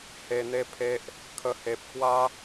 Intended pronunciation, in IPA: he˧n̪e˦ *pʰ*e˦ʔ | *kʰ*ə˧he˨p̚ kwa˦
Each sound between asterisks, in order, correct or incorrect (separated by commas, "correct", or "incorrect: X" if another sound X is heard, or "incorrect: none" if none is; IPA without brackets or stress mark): correct, correct